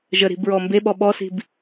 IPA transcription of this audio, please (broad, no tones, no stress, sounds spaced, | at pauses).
ʒ ə ɾ i̤ b ɹ ɔ m b e ɓ ɔ ɓ ɔ s i̤ b